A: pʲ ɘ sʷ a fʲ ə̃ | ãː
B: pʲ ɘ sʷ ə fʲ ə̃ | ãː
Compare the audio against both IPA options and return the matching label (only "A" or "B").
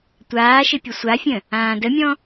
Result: A